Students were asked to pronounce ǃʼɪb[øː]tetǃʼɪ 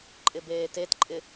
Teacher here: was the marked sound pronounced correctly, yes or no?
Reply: no